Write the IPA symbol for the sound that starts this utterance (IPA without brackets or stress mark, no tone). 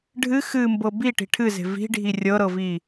ɖʱ